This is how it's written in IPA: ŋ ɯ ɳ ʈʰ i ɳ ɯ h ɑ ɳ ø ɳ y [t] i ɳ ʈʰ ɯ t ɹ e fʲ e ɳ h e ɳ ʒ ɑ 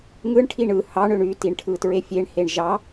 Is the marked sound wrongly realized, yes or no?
no